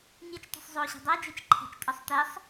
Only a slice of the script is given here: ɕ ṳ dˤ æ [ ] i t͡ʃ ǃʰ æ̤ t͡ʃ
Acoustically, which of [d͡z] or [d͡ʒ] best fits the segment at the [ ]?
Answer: d͡ʒ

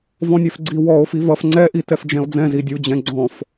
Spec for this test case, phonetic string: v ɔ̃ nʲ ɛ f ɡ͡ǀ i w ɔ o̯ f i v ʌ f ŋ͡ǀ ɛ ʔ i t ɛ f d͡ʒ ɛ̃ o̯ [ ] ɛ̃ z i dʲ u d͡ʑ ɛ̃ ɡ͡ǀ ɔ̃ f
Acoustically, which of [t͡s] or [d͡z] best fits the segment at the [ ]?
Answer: d͡z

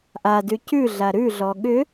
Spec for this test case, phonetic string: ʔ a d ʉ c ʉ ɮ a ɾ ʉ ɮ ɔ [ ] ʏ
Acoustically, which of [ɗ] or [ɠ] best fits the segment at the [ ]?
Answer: ɠ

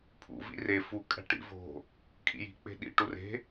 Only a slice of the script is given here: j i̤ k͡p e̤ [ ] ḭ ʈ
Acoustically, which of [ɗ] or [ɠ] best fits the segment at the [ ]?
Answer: ɗ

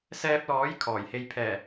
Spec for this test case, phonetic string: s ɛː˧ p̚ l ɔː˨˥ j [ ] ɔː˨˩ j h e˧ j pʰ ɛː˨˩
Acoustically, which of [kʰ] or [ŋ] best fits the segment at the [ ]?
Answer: kʰ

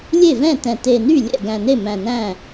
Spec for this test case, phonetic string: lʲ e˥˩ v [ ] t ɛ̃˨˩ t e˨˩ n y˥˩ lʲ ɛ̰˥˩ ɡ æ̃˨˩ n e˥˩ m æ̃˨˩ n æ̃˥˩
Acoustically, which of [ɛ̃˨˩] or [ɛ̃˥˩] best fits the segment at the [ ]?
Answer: ɛ̃˥˩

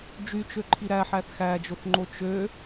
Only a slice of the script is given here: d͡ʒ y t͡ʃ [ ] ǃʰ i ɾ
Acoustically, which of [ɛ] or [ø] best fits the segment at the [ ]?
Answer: ø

